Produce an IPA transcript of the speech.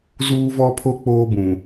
z uː˦ v ɔ˦ pʰ o˦ k͡p oː˦ b ũ˨

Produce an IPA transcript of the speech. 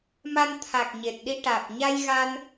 m a˧ n t̪ʰ a˨˩ k̚ ɲ e˨˩ t̚ ɗ i˧ ʈ aː˨˩ p̚ ɲ a˧ j ɣ a˧ n

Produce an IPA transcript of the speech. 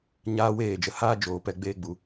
ɲ aː˦ w eː˦˨ d͡ʒ ə˨ h aː˦ d͡ʒ oː˨ p ɛ˧ ɡ͡b eː˧ ɡ͡b u˨

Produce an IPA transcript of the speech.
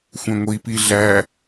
xʷ ɛ̃ ŋʷ i p i ɮ æ

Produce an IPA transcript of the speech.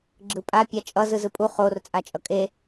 ɡ͡ǁ ɯ pʼ a pʲ a t͡ʃʼ ʌ z ɯ z ɯ pʼ u χ o r t͡sʼ a t͡ʃʼ ʌ kʼ e

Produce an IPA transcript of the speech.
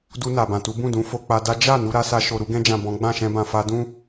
d u˧ n a˨ b ã˨ t u˨˦ b ũ˦˨ d ũ˨˦ f o˧ k͡p a˧ d a˦ d͡ʒ a˦˨ n u˧ ɾ a˦ s a˧ ʃ o˨ ɾ u˧ ɡ ɛ̃˧ d͡ʒ ã˨ b ɔ̃˨˦ ɡ͡b ã˦˨ ʃ ɛ̃˧ b ã˨ f a˧ d ũ˦

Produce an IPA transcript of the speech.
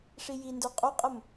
ʂ i j i n d ə˞ qʼ o qʼ ə m

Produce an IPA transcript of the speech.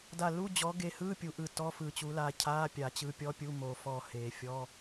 d a˧˩ l u˧˥˧ d͡ʑ ɔ˨˥ ɡ e˧ h ɯ˧˥˧ pʲ u˨˥ ʔ ɯ˧˩ t ɔ˧˥˧ f ɯ˧˩ t͡ɕ u˨˥ l a˧ cʰ a˧˥˧ pʲ a˨˩˦ t͡ɕ ɯ˨˥ pʲ ɔ˧˥˧ pʲ u˧˥˧ m o˨˩˦ f ɔ˧˩ h e˨˩˦ fʲ ɔ˧˥˧

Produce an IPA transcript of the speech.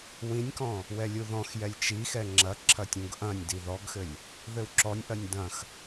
w ĩ nʲ k ɔ̃ | w ɛ lʲ u ð ɔ̃ x j ɛ lʲ t͡ʃ i x ɛ ŋ͡ǁ ɐ ǁʰ ɐ tʲ ũ ɡ ʔ ɐ̃ nʲ d i ð ɔ ɡ x ɘ lʲ | ð ɘ w ǁ ɔ nʲ ʔ ɐ nʲ d ɐ̃ x

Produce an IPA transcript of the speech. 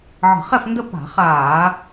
ʕ ə̤˧˩˧ χ ɛ˥˨ f n d ə˥˨ p a̤˧˩˧ χ aː˧˩˧

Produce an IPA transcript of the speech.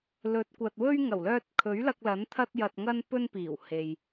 l ɵ˨˥ t̚ kʷ ɐ˨ t̚ w ɵ˥ ɥ ŋ ɐ˨˩ w l œː˧ t̚ kʰ ɵ˨˥ ɥ l ɐ˧ k̚ l ɐ˨˥ n t̪ʰ ɐ˥ t̚ j ɐ˧ t̚ ŋ ɐ˥ n p ɵ˥ n p iː˨˩ w h e˨ j

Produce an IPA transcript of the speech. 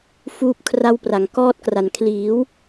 f uː˥˩ p̚ kʰ r a˥˩ w p r a˩˦ ŋ k ɔː˥˩ t̚ k r a˨˩ n kʰ l iː˩˦ w

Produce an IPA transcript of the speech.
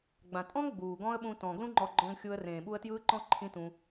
ɡ͡b ã˨ tʼ ɔ̃˦ ŋ ɡ͡b uː˨ ɡ ɔ̃˦ ə̯ ɓ ũ˧ t ɔ̃˨ ɡ l ũ˦ ŋ͡ǃ ɔ˧ ɡ͡ǃ ɔ̃˧ ŋ xʲ u˧ ə̯ r ẽː˨ ɓ u˧ ə̯ t j ɯː˦ ǃ ɔ̃˦ ǃʰ ĩ˦ t ũ˧

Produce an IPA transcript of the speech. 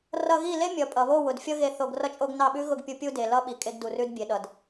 r ʌ˧ ɣ i˦˨ l e˦ mʲ ʌ˨ pʼ ʌ˨ β o˦˨ w ʊ˨ d fʲ ʌ˦ ɣ e˧ θ o˧ ɡ r ʌ˦ t͡ʃʼ o˦ ɡ n ɑ˦˨ ɓ ʉ˦ ɣ ʊ˦˨ ɡ pʲ u˧ pʲ u˧ d e˨ l ʌ˧ ɓ i˧ kʼ e˦ ɡ d u˧ r ʉ˦ d bʲ e˨ ɗ ʌ˨ d

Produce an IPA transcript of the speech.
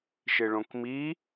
ʃ ɪ ɭ õ k m i

